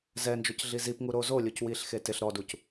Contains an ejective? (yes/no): no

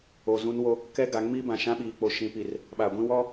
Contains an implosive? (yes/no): yes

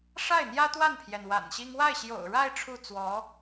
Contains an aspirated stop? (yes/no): yes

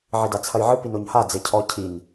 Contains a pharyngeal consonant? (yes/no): yes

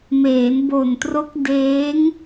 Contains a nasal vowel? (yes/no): no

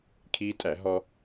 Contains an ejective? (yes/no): yes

